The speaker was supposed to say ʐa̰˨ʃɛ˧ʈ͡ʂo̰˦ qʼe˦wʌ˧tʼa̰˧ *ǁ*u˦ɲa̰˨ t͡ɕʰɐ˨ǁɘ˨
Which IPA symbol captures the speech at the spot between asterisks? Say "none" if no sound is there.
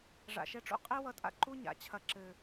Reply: ǃ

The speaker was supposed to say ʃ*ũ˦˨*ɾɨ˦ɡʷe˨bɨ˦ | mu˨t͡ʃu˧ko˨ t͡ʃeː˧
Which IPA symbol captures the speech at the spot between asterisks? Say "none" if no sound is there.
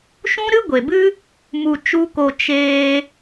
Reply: ũ˦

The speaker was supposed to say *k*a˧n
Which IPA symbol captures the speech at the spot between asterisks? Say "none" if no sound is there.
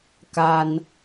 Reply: k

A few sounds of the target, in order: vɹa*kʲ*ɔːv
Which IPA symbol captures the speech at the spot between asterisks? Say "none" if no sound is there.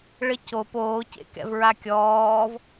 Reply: kʲ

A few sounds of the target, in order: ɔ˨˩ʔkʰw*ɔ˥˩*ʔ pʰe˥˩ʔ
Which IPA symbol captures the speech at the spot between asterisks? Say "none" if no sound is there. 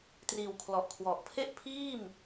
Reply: ɔ˨˩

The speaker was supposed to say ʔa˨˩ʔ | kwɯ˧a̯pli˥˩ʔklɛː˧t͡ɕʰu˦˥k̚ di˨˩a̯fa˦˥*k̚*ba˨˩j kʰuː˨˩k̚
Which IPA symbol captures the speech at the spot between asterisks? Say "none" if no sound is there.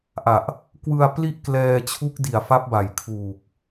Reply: p̚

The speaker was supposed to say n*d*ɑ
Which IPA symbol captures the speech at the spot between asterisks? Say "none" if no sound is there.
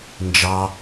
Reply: d͡ʒ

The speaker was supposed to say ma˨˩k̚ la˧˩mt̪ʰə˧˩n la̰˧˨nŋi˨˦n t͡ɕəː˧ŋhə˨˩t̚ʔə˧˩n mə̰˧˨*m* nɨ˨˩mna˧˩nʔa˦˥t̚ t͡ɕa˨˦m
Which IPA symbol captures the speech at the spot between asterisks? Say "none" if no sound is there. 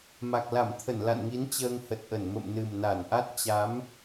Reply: m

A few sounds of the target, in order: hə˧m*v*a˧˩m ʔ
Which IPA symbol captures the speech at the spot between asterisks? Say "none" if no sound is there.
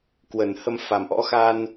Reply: f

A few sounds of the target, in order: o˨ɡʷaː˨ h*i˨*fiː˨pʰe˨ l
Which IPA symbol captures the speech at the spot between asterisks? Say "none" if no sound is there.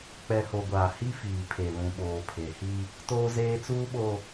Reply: i˦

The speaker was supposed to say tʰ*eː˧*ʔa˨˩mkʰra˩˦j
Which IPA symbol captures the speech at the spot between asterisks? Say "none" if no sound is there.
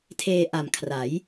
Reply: eː˧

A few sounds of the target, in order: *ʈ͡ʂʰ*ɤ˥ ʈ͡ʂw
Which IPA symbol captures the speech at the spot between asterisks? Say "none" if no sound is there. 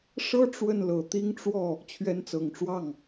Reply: ʂ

